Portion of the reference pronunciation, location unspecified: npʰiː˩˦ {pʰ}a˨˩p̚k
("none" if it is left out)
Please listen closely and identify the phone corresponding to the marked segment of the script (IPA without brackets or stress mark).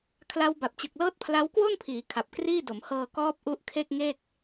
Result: kʰ